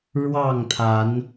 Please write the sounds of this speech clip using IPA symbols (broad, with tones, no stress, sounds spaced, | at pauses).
ɻ w ɑ˥˨ ŋ t̪ʰ a˨˦ n